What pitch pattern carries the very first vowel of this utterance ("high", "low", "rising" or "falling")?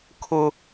high